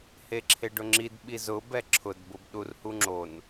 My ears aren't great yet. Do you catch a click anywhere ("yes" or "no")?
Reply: yes